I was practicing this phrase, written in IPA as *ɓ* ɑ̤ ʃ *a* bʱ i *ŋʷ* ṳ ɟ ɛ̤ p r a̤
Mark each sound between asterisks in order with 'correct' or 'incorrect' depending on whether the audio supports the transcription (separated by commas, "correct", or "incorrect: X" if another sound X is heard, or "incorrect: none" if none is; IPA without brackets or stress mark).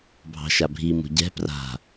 incorrect: bʱ, correct, incorrect: m